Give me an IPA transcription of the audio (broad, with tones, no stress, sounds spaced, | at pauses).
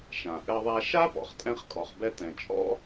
ʃ ã˩ ʔ ɘ˧ ðˤ a˧ ʃ a˥ p ɔ̰˩ χ tʼ ɛ̃˧ χ kʼ ɔ˩ χ b ɛ˧ t ɛ̃˩ t͡ʃʼ ɔ̰˥